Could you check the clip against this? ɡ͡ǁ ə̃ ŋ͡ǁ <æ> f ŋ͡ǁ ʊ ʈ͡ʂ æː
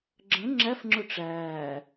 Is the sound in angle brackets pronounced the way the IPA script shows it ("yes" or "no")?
yes